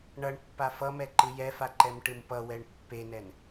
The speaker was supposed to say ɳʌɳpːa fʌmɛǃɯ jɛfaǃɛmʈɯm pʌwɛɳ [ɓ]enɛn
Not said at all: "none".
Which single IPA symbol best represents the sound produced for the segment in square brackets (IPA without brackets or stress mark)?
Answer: pː